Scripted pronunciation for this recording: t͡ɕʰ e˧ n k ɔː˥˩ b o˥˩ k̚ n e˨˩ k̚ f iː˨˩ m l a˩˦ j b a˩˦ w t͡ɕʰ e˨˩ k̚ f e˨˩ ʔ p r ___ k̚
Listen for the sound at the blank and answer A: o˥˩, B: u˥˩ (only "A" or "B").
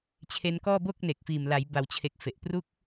B